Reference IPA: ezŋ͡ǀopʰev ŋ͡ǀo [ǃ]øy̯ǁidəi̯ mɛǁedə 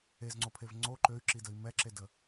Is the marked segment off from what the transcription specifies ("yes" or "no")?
no